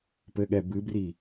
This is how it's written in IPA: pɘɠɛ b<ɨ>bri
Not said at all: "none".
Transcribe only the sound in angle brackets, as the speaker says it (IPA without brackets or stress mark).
ɨ